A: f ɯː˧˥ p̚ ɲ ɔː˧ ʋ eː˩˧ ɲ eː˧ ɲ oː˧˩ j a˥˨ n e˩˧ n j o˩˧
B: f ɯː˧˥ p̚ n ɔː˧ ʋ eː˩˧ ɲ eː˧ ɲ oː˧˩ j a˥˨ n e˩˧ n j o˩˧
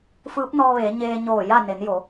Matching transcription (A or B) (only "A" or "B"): B